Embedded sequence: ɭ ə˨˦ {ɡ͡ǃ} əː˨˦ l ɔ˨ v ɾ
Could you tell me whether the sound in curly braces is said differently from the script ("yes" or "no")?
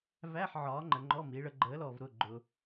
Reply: no